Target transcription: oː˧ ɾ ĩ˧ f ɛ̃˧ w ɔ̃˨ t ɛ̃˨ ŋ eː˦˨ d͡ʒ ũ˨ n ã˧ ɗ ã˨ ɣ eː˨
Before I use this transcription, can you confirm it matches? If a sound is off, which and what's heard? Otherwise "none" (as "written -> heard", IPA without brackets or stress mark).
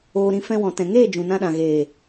none